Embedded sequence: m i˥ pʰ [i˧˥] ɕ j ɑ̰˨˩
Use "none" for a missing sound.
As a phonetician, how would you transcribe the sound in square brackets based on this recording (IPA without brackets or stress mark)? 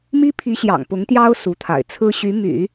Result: i˧˥